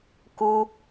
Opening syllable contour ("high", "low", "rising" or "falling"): high